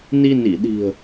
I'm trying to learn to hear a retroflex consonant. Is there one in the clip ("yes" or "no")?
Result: no